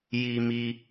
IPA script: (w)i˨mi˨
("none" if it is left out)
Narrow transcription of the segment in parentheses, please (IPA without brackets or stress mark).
j